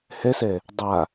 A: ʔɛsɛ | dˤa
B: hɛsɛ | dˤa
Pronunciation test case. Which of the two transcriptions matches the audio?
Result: B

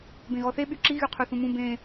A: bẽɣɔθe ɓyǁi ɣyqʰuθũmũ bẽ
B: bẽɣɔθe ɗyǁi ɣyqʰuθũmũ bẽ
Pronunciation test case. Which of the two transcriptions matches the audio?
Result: A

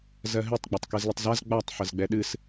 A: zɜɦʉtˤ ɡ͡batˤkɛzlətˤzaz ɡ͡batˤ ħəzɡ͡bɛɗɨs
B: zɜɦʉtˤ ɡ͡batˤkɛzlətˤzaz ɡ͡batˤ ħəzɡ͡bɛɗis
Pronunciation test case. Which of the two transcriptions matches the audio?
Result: A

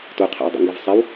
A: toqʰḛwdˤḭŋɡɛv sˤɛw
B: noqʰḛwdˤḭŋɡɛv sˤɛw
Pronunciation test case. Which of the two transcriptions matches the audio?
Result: A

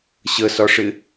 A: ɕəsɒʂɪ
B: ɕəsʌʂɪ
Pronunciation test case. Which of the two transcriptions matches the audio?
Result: A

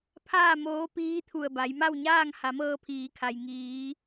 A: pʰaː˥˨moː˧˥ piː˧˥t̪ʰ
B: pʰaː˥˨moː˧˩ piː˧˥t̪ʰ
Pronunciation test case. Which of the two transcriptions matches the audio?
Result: A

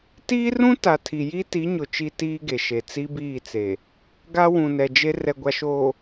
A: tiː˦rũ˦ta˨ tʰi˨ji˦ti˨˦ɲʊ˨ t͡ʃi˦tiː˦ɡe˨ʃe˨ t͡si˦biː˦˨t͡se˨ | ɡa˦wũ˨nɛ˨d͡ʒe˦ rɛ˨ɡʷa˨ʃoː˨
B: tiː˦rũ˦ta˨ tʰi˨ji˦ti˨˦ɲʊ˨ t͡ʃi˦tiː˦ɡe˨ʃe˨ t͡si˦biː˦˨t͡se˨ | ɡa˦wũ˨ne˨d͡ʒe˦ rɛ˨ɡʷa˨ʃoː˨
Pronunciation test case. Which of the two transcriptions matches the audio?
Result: A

